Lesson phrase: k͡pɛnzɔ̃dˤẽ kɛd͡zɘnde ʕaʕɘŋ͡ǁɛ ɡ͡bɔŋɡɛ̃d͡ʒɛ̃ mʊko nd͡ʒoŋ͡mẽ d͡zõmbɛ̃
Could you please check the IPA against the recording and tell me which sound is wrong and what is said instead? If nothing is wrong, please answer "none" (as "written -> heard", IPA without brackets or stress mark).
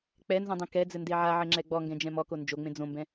ʊ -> ɔ